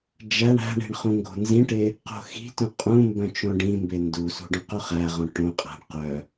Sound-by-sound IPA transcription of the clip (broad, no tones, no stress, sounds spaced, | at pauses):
d͡ʒ æ ɳ æ̤ ɳ i̤ ɳ χ ũ ŋ ɡ o̤ n z ĩ ʈ e | q o̤ x i̤ t ũ qʼ ũ m b œ̃ t͡ʃ õ ɖ ĩ m b e n d u s ṳ ɖ õ q u χ æ ʁ õ ʈ õ qʼ æ̤ ɳ q œ